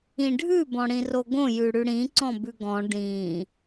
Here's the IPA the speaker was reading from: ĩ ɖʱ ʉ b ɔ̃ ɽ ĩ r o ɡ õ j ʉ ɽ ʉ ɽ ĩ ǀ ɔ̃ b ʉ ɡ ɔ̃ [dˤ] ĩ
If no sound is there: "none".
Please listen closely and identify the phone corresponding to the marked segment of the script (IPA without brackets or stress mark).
ɖ